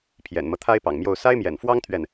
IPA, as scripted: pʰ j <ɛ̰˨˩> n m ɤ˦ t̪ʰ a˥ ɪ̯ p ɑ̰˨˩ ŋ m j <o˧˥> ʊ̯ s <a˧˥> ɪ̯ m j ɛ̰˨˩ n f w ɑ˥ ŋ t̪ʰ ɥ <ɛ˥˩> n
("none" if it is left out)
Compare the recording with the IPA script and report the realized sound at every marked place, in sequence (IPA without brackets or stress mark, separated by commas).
ɛ̰˨˩, o˥˩, a˥, ɛ˥˩